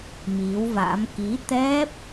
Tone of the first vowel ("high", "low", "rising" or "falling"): rising